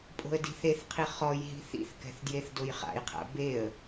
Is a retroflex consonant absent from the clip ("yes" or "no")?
yes